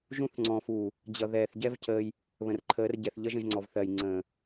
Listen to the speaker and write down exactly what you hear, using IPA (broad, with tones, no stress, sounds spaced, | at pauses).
ʒ ũ˦˨ θ ŋ͡ǀ ɔ̃˨ f uː˨ | d͡ʑ ʌ˨ ð ɛː˨ θ ɟ ɛ˦ v c əː˧ j | β ə̃˨ r ǃʰ əː˨˦ r ɟ ɛ˨ θ ʎ ʌ˦ ʒ ə̃˧ ʒ ŋ͡ǀ ɔ˨ v θ ɜ˨ j ŋ͡ǀ ə̃ː˨